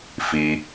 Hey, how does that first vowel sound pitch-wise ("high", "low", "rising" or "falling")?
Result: low